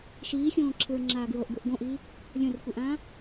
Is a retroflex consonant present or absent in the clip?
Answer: absent